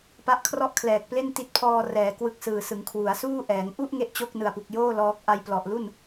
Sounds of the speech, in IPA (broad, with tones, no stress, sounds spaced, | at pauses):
p a˦˥ ʔ kʰ r ɔ˥˩ ʔ kʰ l ɛː˨˩ k̚ p l e˥˩ n t i˦˥ t̚ pʰ ɔː˧ r ɛː˩˦ k w ɯ˦˥ k̚ s ɯː˨˩ s ɯ˩˦ ŋ kʰ w u˩˦ a̯ s uː˥˩ ʔ ɛː˩˦ ŋ ʔ u˥˩ ʔ ŋ e˥˩ ʔ t͡ɕ o˥˩ k̚ n ɯ˨˩ a̯ p u˨˩ k̚ j oː˥˩ l ɔː˦˥ k̚ ʔ a˧ j p l ɔ˨˩ ʔ l u˥˩ n